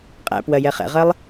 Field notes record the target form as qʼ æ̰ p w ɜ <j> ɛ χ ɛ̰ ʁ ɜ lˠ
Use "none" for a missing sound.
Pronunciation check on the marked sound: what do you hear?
j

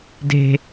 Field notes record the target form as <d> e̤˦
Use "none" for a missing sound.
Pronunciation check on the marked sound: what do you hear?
d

